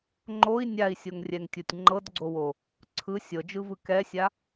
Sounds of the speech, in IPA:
ŋ͡ǃ o i̯ nʲ a i̯ sʲ o ŋ rʲ ɛ ŋ tʲ o tʲ ŋ͡ǃ ɤ d ɡ͡ǀ o w o | ǀʰ ɯ sʲ ɤ d͡ʒ ɯ v ɯ k ɛ sʲ a

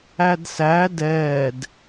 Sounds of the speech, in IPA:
æ d s æ d ɛː d

